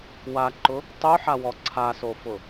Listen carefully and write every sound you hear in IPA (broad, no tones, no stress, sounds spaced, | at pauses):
w a ǃ ʊ | tˤ u ħ a w ɔ ǀʰ a s o f ʊ